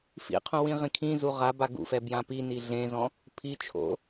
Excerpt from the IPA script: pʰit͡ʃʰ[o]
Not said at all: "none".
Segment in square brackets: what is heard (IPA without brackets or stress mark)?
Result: o̰